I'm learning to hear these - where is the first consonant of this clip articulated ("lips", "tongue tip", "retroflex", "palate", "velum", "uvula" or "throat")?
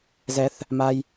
tongue tip